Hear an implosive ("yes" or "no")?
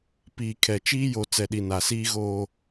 yes